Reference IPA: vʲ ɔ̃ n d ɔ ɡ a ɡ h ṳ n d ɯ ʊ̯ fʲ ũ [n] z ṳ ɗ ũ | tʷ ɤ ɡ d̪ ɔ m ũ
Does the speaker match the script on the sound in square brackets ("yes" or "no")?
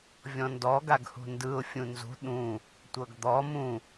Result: yes